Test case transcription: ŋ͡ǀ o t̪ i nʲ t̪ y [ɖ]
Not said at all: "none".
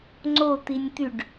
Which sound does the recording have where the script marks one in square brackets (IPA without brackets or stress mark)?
ɖ